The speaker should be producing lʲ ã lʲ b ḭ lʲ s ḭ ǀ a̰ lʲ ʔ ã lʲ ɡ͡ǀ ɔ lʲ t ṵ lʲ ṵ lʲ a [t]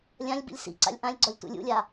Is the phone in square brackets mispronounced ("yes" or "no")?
yes